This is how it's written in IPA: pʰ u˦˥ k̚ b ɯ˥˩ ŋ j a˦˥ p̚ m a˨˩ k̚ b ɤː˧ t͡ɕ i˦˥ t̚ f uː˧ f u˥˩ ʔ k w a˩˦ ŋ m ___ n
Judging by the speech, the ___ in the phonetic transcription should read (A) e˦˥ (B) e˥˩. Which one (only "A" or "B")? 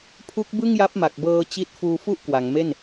B